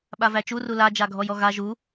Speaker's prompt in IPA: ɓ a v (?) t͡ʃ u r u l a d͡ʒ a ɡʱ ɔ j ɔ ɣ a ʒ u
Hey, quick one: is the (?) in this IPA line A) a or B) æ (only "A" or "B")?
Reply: B